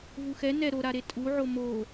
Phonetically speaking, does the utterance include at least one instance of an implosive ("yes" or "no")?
no